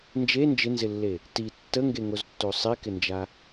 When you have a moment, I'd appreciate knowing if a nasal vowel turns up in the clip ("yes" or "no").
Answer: no